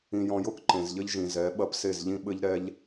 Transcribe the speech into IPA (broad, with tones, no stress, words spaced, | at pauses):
ĩ˨jɔ̃˨jo˦k ǃẽ˨zʎɘ˦ʎʒĩ˨ zɛ˨˦ ɓɐ˦pse˦˨zʎĩ˦ ɓɘ˦ʎɾɛ˦ʎ